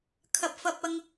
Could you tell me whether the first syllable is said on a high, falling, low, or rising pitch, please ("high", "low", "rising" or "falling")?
low